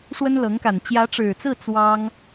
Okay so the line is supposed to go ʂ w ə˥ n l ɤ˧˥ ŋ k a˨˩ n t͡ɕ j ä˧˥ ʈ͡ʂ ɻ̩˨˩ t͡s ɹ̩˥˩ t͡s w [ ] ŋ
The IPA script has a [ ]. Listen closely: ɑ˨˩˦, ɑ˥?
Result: ɑ˥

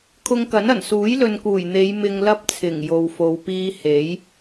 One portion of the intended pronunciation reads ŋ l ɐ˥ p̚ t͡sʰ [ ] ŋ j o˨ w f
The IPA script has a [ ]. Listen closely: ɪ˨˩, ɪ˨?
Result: ɪ˨˩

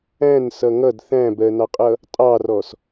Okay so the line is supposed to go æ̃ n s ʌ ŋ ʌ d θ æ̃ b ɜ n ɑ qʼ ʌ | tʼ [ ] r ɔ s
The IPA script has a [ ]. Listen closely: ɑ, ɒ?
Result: ɑ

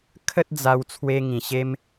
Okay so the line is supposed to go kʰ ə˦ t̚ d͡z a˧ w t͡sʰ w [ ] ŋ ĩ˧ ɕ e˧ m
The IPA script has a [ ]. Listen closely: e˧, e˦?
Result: e˦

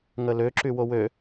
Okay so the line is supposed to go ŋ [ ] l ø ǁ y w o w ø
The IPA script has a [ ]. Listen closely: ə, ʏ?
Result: ə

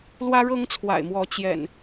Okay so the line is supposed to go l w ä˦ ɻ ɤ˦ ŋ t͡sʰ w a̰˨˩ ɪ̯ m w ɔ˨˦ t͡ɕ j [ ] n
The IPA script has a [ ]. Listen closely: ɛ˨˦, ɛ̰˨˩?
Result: ɛ̰˨˩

